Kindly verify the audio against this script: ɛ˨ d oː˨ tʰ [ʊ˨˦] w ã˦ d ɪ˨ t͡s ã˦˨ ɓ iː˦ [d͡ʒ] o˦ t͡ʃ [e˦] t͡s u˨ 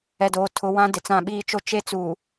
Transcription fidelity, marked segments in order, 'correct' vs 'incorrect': correct, incorrect, correct

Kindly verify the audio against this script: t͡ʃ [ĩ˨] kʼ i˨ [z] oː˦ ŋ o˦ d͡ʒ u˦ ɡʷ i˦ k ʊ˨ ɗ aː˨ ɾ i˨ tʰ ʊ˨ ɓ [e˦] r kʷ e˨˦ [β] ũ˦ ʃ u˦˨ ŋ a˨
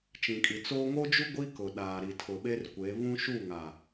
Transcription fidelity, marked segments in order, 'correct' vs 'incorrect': correct, incorrect, correct, correct

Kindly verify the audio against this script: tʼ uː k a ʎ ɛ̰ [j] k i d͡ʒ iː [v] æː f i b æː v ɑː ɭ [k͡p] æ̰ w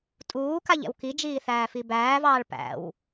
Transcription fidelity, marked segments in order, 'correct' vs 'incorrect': incorrect, incorrect, incorrect

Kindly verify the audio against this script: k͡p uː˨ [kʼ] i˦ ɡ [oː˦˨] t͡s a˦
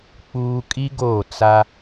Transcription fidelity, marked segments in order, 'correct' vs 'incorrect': correct, correct

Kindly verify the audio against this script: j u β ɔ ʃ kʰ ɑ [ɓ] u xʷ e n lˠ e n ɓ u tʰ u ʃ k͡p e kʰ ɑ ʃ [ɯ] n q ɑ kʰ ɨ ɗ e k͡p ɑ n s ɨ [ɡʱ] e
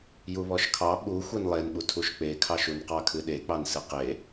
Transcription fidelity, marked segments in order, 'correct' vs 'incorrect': correct, incorrect, incorrect

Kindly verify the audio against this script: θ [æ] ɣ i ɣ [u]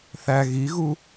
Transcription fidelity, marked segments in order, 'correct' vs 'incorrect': correct, correct

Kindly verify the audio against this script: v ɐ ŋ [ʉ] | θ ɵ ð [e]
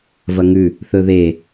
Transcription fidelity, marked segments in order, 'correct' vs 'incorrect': correct, correct

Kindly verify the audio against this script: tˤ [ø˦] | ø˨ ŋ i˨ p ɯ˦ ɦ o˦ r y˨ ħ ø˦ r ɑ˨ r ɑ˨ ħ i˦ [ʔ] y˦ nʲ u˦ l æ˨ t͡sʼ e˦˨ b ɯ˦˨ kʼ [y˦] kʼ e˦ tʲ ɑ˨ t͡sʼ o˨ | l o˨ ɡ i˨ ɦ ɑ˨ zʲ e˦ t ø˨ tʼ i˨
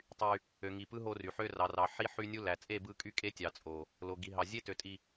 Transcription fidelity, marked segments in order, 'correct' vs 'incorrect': incorrect, incorrect, correct

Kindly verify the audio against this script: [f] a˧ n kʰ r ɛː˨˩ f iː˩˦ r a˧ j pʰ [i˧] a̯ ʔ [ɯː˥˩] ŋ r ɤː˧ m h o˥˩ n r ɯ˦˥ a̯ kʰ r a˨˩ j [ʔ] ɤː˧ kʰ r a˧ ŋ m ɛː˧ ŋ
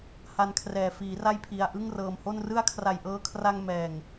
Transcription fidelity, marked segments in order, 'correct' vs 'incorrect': incorrect, correct, incorrect, correct

